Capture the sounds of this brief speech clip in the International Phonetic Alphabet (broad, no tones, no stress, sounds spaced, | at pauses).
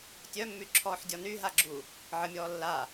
tʲ œ mː y ǁʰ ɔː ħ dʲ ɔ n y ɦ a ɡ͡ǁ u | ʕ ə mʲ ɔː lː a